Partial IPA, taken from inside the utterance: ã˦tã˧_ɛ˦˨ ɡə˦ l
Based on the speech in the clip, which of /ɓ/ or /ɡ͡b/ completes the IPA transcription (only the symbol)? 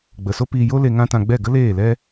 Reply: ɡ͡b